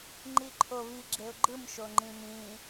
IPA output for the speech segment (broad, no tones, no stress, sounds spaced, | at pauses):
ŋ͡ǃ i ǃʰ o β i ɡ͡ǁ e ʊ̯ ɡ͡ǃ ɯ m ʃ o ŋ͡ǃ ĩ m ĩ